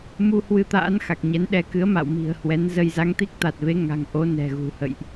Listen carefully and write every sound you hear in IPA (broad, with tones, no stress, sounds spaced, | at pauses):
m u˧ h w ɨ˧ t̪ a̰ː˧˥ n x a˨˩ k̚ ɲ ɛ˨˦ n ɗ ɛ˧ k ɨ˨˦ ə̯ m a̰˧˨ w m i̤˨˩ ə̯ h w ɛ˨˦ n z ə˧ j z a˨˦ ŋ t̪ i˦˥ k̚ t̪ a˨˩ t̚ v e˨˦ ŋ a̤˨˩ ŋ ʔ o˨˦ n ɛ̤˨˩ ɣ ṳ˨˩ h ə̰˧˨ j ʔ